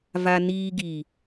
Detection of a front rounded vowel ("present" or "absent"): absent